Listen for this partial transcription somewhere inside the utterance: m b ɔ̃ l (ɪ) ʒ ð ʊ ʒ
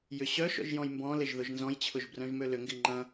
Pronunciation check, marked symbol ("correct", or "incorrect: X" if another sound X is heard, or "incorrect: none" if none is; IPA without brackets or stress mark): correct